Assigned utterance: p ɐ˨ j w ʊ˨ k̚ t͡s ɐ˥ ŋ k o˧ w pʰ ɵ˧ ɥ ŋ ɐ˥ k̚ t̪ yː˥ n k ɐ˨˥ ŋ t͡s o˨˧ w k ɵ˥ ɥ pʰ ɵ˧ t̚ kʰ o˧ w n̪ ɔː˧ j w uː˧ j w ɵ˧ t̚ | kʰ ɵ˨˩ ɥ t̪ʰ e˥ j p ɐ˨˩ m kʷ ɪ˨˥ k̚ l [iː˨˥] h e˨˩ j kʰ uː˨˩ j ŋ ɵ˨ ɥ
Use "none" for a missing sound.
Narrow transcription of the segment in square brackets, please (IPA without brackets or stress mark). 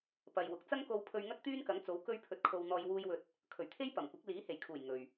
iː˨˥